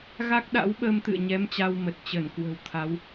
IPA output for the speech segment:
ɣ a˦˥ k̚ ɗ a̰˧˥ w ɓ əː˧ m t̪ ɨ̰˧˨ ə̯ ɲ ɛ˨˦ m t͡ɕ a˧ w m ə˨˩ t̚ t͡ɕ ə˧˩ n k w ə̤˨˩ w t̪ʰ a˨˦ w

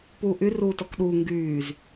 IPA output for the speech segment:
p uː ʔ y r uː t ɔ k ɗ uː ŋ ɡ yː z

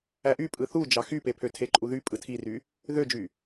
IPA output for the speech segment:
æ ʔ y pʼ ɯ θ u d͡ʒ ɑ x y p e pʰ ø tʰ e ǃʼ u ð y pʼ ɯ tʰ i r y | ð ø d͡ʒ y

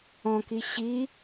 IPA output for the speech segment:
ɔ̃ k i ɕ i

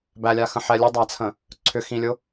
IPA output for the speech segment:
b æ lʲ a x ə̃ ħ ɛ lʲ ə dˤ a t͡sʰ ə̃ | ǀʰ ʏ x ĩ lʲ ʊ

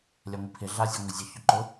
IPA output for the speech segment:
lʲ a ŋʷ i pʰ ɪ ɮ a zʲ ɛ ŋʷ ɪ zʲ ʊ ç ʊ ǃ ʊ

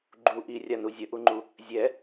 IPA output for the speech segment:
ɡ͡ǃ u ʔ i rʲ a n u zʲ ə ʔ u ŋ͡ǃ u | zʲ ɛ

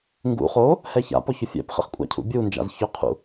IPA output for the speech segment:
ŋ ɡ ṵ χ o | h ɛ ç a̰ p ɔ ç ʊ fʲ ɛ̰ p χ ɛ̰ χ kʷʼ a̰ cʰ ṵ bʲ u n d͡ʒ a̰ z ç ʊ qʰ ṵ

